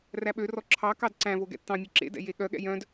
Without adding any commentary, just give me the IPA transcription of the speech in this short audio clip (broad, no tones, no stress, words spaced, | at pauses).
ræɓørɔ ǁʰɑ kɑdǀæ̃vo ɡɛ̰tːɑ̃mʲø ǁḛdɛ̰ jeɠœɠɛ̰ jœ̃d